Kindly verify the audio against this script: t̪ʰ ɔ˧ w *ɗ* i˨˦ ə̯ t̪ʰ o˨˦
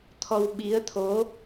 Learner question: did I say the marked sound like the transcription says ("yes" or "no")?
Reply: no